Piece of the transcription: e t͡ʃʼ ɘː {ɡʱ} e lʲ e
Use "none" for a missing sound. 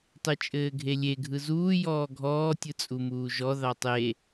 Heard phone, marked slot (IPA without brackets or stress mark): ɡʱ